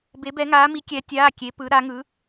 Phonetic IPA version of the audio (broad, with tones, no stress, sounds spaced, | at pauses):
b e˧˥ b ɛ˧˥ ŋ aː˧˥ m i˧˥ kʲ ɛ˧˥ tʲ aː˧˥˧ kʲ e˧˥ p ɯ˧˥ ɾ a˧˥ ŋ ɯ˧˥